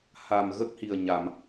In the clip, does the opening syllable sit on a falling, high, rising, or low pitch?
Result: low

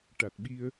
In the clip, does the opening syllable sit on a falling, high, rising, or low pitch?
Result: low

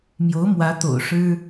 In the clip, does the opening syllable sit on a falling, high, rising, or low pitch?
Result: rising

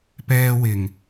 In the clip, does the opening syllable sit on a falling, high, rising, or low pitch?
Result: high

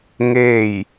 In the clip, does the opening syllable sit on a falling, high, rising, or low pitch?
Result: falling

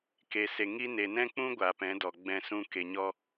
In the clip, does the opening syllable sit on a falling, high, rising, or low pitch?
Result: low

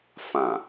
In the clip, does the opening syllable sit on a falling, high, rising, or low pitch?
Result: low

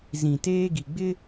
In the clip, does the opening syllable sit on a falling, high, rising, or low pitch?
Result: low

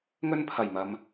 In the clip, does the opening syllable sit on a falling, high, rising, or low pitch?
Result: high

